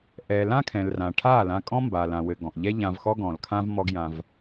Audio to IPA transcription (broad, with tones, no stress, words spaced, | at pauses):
ʔɛ˨ lã˦ kʰɛ̃˨lrã˨ʈʰa˦˨ lã˧kʼɔ̃˦ mba˨lã˨ wɘ˨ ɡɔ̃˨ʔʎɛ˦ ʎã˧vxɔ˦ɡɔ̃˨lkʰã˦v mɔ˧ɡjã˧v